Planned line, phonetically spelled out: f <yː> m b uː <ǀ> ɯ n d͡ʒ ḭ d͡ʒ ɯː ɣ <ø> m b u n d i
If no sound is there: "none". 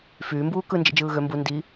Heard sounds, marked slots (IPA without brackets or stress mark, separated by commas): yː, k, ø